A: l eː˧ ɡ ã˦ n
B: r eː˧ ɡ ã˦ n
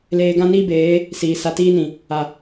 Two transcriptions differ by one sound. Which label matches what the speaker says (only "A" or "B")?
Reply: A